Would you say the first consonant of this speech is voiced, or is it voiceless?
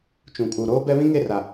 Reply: voiceless